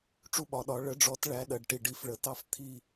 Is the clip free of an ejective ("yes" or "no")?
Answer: yes